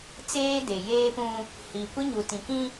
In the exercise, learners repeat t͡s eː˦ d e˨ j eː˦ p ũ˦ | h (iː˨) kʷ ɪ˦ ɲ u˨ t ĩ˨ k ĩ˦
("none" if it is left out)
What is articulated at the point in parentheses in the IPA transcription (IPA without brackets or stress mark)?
iː˨